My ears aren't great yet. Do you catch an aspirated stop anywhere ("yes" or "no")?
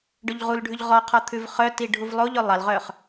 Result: yes